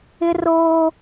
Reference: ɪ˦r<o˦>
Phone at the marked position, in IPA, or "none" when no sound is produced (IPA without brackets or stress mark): oː˦